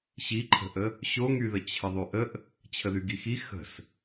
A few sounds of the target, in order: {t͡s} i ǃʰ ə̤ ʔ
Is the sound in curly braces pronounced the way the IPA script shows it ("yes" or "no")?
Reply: no